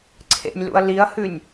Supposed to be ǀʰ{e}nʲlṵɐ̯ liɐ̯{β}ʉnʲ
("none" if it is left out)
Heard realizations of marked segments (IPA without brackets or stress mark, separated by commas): ḛ, h